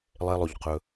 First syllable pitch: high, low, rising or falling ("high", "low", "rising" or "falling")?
low